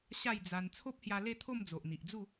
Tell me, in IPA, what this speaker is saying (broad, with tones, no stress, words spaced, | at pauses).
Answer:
ɕa˥˧jd͡za˧n t͡sʰo˦p̚hja˧le˥˧t̪ʰo˥˧m d͡zo˨ʔn̪i˨ʔd͡zu˥˧